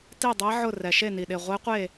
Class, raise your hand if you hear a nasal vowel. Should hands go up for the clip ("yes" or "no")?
no